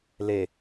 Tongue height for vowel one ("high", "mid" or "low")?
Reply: mid